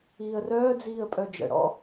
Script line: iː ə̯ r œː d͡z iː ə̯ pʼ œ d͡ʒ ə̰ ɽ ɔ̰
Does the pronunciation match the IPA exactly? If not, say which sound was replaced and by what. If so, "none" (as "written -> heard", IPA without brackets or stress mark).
none